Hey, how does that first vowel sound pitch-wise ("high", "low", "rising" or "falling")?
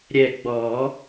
low